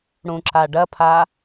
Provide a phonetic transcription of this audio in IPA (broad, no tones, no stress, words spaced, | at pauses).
ɽũǁaɖɐpʰa